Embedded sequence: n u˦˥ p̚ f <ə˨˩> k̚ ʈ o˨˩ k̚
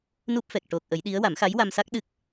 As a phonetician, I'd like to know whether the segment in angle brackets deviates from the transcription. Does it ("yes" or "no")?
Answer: yes